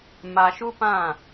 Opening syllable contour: low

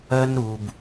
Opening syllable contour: high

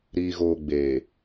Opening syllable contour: low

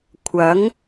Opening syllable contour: rising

